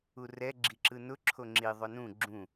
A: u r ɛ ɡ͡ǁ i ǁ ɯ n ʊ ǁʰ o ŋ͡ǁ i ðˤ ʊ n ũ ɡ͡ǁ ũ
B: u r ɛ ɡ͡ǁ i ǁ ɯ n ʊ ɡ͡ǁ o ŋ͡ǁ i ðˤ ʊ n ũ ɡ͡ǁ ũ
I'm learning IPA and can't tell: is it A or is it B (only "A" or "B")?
A